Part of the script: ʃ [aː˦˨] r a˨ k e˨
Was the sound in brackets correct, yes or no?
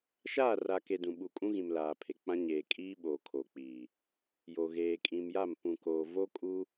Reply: yes